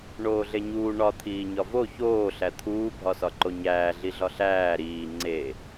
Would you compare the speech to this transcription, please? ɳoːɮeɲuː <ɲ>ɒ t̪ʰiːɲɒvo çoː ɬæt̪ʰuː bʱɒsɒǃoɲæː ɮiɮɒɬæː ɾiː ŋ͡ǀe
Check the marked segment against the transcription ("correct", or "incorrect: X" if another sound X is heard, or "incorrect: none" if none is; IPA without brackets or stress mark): incorrect: ɳ